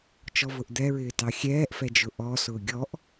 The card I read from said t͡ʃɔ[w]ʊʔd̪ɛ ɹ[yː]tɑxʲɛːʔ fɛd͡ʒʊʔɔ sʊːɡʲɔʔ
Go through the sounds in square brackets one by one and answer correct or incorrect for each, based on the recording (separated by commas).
incorrect, incorrect